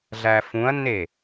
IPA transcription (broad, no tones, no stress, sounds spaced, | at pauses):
ɮ æ f ũ ɐ̯ nː e